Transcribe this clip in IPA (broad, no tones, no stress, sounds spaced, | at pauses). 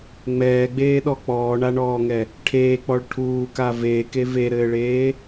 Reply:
ŋ͡m ɛː ɡ͡b eː ɗ ɔ k͡p ɔː ɳ a ɳ ɔː ŋ ɛ | ʈʰ eː k͡p ɔ ɭ ʈʰ uː k a v eː k e v e ɾ ɘː ɭ eː